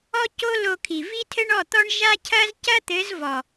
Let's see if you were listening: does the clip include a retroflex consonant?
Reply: yes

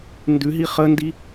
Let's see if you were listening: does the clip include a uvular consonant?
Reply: yes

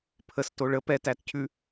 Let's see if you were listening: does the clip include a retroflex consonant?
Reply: yes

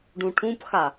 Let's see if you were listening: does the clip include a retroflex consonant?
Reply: yes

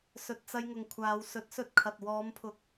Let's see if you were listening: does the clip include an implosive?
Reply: no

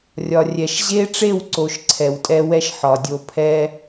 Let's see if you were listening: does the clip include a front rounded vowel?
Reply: no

